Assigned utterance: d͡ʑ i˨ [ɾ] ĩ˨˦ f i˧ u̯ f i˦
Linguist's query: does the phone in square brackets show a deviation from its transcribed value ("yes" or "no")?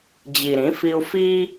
no